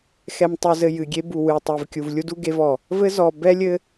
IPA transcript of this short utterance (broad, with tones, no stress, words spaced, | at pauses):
xɛ˨mtˤu˨zɘ˨ jɨ˨ɡʲe˦ bu˨wɨ˨tˤe˨v kʲu˨vlʲu˦du˦ ɡe˦vɔ˨ | vɘ˦zɔ˨ bɛ˦lʲɘ˦